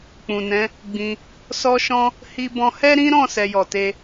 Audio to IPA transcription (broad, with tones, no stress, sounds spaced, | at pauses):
k͡p ũ˨ n ɛ̃˨˦ | ɡ͡b ĩ˧ | s ɔ˦ ʃ ɔ̃˦ | h i˦ b ɔ̃˦ h ɛ˦ ɾ ĩ˦ ɾ ɔ̃˦˨ s ɛ˧ j ɔ˨ t e˧